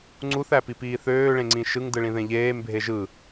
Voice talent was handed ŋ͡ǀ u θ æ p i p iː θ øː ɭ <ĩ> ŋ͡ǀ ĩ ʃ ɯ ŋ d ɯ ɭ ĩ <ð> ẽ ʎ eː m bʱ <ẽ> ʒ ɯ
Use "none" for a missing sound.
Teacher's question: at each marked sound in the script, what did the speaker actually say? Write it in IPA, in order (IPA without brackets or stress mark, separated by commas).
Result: ẽ, ð, e